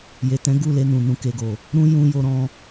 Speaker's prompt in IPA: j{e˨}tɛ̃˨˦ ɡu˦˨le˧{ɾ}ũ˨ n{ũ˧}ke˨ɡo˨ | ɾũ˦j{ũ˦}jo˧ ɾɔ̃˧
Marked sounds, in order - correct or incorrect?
correct, incorrect: n, incorrect: ũ˨, incorrect: ũ˧

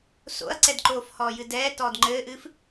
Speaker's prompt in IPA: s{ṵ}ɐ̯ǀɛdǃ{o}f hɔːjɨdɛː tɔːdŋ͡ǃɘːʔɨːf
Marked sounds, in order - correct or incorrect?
incorrect: o̰, incorrect: oː

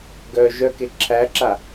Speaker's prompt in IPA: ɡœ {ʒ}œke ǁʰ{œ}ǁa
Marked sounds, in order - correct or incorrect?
correct, incorrect: æ

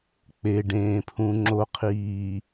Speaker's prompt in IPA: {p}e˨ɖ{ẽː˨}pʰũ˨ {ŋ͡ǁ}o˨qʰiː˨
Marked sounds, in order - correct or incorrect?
incorrect: k͡p, correct, correct

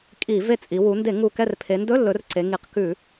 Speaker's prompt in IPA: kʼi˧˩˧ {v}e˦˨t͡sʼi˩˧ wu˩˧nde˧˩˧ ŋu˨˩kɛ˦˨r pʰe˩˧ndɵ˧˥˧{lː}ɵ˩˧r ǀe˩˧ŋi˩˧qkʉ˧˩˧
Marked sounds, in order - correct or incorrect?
correct, correct

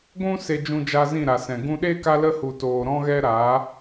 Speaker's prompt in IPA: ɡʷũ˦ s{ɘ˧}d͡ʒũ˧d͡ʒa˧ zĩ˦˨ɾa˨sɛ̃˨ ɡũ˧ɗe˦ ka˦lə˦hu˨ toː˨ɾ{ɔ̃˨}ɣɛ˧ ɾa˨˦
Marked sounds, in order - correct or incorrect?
incorrect: e˧, incorrect: ɔ̃˧

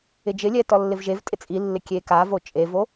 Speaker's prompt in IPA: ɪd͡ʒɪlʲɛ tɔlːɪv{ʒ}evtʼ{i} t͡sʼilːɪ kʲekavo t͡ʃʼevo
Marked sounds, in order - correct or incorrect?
correct, incorrect: ɪ

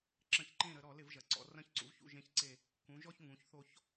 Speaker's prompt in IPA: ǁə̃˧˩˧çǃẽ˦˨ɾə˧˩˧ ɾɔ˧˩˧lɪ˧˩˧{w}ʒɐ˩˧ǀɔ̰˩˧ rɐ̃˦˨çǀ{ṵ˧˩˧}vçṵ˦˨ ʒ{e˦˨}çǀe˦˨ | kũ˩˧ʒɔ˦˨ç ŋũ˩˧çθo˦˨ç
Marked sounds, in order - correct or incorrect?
incorrect: v, incorrect: ṵ˩˧, incorrect: ẽ˦˨

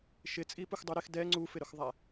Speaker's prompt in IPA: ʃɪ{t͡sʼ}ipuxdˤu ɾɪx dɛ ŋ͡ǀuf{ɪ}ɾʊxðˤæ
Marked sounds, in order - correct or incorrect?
correct, correct

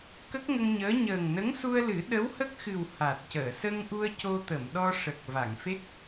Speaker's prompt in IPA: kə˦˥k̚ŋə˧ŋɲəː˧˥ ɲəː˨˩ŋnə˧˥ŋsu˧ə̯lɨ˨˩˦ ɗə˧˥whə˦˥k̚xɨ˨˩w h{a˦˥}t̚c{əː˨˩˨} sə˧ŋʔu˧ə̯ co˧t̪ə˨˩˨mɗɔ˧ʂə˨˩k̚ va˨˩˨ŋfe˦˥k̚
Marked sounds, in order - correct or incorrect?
incorrect: a˨˩, correct

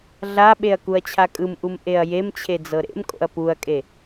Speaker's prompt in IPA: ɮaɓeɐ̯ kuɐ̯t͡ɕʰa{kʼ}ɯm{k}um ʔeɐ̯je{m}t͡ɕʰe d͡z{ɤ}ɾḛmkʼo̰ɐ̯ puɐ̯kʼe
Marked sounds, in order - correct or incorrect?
correct, incorrect: ʔ, correct, correct

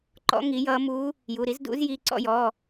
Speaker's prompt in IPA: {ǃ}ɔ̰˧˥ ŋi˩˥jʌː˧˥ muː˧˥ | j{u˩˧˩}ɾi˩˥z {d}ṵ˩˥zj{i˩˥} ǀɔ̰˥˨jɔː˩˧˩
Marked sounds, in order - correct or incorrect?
correct, correct, correct, incorrect: i˩˧˩

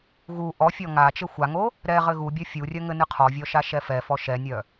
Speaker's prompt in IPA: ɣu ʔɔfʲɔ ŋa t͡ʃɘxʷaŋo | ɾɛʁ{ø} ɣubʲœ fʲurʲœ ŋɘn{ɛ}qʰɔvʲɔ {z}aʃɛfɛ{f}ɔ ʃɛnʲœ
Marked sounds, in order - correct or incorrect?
incorrect: ɘ, incorrect: ɨ, incorrect: ʃ, correct

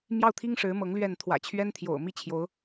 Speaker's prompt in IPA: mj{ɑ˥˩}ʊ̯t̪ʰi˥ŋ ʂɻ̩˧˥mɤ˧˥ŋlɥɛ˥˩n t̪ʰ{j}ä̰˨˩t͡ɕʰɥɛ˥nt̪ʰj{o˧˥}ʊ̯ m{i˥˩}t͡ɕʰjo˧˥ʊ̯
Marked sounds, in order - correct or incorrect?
correct, incorrect: w, incorrect: o̰˨˩, correct

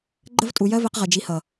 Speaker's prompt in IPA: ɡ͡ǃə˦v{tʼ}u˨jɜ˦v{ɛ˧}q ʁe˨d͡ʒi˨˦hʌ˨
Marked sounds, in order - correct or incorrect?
correct, incorrect: e˧

